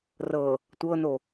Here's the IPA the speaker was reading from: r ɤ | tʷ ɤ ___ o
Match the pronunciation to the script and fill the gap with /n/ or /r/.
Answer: n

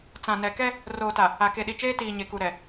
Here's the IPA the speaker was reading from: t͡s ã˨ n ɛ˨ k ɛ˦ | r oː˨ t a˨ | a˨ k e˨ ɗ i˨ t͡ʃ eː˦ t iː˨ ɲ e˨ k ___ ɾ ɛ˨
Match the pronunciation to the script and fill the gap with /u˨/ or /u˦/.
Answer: u˨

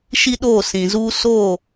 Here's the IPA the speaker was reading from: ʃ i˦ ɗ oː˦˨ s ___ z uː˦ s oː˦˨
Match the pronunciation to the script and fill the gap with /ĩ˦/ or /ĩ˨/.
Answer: ĩ˨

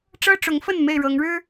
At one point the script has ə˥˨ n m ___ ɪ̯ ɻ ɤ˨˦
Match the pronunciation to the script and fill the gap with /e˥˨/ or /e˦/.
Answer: e˥˨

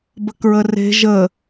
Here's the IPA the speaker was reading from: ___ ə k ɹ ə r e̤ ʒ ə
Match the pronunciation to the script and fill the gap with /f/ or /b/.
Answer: b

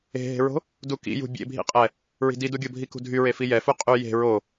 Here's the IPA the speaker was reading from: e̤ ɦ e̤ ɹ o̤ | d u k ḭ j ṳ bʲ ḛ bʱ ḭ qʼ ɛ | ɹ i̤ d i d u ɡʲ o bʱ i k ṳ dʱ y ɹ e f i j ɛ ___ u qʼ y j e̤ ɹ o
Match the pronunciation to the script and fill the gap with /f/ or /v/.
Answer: f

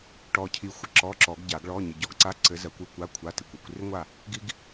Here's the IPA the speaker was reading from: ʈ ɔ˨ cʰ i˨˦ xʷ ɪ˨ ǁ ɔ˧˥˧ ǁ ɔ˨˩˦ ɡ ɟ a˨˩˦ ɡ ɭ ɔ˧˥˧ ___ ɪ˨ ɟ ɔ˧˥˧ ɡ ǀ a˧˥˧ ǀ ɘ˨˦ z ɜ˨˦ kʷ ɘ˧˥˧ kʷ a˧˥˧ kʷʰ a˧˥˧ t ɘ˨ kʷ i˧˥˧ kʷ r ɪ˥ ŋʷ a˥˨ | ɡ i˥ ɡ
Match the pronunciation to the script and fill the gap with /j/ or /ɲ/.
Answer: ɲ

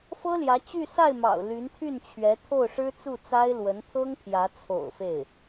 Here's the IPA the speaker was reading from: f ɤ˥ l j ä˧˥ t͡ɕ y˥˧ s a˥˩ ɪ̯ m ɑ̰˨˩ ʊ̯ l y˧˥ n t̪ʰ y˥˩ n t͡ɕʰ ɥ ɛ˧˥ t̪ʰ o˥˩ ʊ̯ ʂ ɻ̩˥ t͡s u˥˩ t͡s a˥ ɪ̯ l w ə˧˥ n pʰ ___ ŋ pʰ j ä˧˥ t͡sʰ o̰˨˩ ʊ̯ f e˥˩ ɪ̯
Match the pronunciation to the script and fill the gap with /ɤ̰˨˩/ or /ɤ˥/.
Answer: ɤ˥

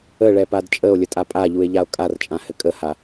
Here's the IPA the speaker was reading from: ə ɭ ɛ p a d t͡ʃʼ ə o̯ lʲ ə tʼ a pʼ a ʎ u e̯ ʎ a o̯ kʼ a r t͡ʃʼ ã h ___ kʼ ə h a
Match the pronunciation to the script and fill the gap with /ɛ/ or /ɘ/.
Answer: ɘ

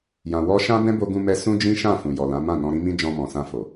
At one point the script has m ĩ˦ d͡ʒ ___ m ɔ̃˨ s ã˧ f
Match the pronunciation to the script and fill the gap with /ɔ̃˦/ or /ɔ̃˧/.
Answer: ɔ̃˧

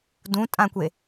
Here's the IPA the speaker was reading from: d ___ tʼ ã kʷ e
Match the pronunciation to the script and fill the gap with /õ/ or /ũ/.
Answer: ũ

